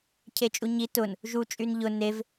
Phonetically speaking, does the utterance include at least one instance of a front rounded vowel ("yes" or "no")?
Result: yes